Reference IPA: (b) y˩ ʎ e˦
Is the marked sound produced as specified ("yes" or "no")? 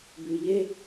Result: yes